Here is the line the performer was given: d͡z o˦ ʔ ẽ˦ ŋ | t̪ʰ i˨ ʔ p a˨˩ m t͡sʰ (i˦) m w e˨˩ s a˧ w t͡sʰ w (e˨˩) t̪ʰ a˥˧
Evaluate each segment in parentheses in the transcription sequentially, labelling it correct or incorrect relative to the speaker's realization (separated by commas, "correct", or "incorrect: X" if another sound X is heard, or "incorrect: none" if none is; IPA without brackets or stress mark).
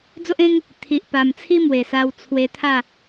correct, incorrect: e˧